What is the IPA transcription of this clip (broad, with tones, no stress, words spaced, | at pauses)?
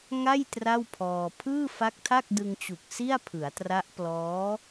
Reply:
ŋa˥˩j tra˥˩wpʰɔː˧ pʰɯː˥˩fa˦˥k̚tʰa˥˩k̚ dɯ˧ŋt͡ɕu˨˩k̚ si˥˩a̯pʰɯ˩˦a̯tra˦˥ʔ plɔː˦˥